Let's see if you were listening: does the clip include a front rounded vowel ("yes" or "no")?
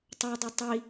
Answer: no